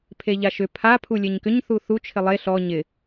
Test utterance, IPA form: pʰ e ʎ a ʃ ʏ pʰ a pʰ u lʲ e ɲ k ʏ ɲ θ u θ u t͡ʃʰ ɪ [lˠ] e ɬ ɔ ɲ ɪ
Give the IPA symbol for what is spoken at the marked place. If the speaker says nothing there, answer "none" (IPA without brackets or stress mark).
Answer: lˠ